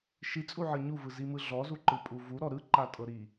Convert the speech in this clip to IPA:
ʃit͡sʼuʕɤ ɲuvɯzimɯ ɮɔzuǃɯpʼu vuɾɔ ɾɯǃatʼɤɾi

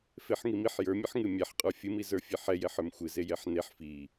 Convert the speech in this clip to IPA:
feħŋimiħ jə˞mʲɨħŋɨ mʲɛħqʼə˞ fʲɨmi zə˞fʲeħɛjɛħ ə˞mxʷɨze jɛħneħ fi

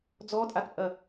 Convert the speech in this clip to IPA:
d͡zɔtʼatpʼɐ

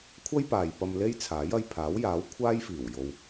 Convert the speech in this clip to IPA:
kʷʰɐ˥jpaː˨jpɐ˧m le˥jt͡sʰaː˨˥j ɐ˧jpʰaː˨˥wjaː˨˥w kʷʰaː˥jfiː˨˩wjo˨w

